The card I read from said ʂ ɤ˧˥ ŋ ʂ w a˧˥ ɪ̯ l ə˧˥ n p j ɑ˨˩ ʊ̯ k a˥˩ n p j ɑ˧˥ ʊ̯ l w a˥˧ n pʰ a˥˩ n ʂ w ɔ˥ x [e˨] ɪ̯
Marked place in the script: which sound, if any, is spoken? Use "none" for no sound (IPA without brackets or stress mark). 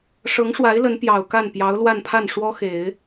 e˨˩˦